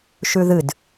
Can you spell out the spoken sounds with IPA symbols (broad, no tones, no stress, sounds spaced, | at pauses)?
ʃ ʉ ð ɨ d